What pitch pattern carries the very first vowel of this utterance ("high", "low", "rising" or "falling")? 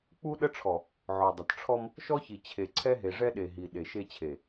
high